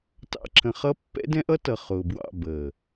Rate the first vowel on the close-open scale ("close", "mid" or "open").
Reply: open